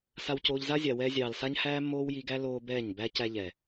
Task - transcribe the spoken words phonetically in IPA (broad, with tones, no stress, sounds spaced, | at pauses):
s a˧ w c oː˧ ʎ z a˦ zʲ a˨ w ɛː˧ zʲ ɑː˨ l s a˦ ɲ h æː˦ mː oː˦ w j i˧ ɡ æ˦ l oː˧ b ɛː˦˨ ɲ b æ˦ c æ˧ ʎ ɛː˨